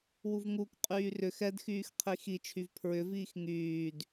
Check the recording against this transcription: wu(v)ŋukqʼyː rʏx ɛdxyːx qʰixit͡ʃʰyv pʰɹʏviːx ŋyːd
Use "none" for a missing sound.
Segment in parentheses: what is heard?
v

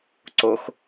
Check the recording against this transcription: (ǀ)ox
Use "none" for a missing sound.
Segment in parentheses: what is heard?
ǀ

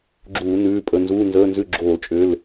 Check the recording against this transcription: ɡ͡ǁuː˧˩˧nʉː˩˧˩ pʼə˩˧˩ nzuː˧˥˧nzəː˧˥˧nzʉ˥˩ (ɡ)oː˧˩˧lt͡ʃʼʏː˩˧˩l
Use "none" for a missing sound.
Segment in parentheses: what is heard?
ɡ͡ǁ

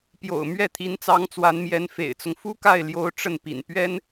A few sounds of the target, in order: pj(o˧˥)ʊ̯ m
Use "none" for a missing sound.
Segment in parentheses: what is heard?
o̰˨˩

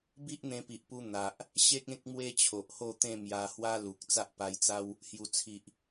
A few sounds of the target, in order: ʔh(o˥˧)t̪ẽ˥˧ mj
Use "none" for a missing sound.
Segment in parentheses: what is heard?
o˥˧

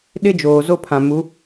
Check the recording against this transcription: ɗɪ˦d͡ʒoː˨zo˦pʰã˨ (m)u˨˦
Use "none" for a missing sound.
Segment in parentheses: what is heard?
m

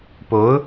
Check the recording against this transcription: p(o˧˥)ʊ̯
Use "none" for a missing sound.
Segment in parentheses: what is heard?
o˧˥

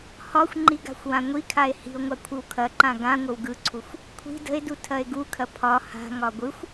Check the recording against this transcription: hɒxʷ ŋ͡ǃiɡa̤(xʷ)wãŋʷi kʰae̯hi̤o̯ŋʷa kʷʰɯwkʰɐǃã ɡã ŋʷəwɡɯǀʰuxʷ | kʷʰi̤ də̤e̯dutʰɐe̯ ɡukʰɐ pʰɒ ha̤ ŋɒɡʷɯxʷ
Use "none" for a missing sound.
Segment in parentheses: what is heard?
xʷ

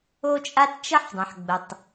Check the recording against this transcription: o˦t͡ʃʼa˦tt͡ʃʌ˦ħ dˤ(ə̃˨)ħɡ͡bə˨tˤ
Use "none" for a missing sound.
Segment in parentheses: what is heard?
ə̃˨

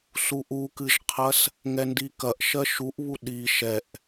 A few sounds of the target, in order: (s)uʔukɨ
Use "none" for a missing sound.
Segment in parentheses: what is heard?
s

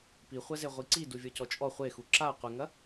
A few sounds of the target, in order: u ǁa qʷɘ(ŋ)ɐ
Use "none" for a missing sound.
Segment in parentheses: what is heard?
ŋ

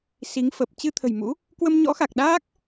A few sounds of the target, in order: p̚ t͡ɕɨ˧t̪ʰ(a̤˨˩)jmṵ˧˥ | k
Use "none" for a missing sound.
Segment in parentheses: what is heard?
ə̤˨˩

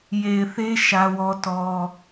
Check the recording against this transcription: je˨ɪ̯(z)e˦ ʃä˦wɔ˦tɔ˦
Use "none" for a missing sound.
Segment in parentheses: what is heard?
θ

